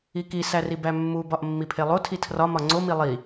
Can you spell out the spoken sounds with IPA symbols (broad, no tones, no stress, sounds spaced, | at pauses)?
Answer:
i k i s æ r i b æ mː u b ɒ ʔ mː i pʰ e lˠ o tʰ i tʰ r ɒ m ɒ ŋ͡ǀ o m i lˠ i